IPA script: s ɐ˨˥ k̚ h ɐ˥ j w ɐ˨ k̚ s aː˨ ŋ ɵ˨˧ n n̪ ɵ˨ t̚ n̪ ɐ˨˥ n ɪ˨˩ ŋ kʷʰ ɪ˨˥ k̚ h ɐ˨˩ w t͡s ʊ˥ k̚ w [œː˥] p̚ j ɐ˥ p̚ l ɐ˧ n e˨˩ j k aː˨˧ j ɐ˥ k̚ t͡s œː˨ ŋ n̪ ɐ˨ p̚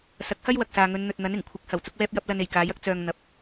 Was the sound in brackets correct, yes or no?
no